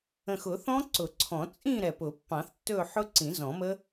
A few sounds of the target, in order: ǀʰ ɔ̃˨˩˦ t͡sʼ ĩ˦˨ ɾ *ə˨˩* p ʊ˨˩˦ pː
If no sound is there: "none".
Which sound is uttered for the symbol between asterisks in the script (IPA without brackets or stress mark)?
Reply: ɛ˨˩